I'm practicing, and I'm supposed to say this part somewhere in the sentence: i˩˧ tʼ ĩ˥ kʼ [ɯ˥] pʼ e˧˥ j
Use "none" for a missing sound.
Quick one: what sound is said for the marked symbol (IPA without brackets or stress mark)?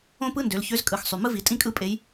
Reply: ɯ˥